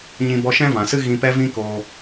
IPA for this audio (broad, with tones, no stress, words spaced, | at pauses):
ɲĩ˧ bɔ˧ʃɛ̃˦vã˨sɨ˦ ɣĩ˧pɛ˦vĩ˦koː˧